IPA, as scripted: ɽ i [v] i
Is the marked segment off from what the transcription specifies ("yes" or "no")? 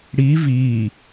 no